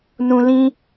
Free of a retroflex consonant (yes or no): yes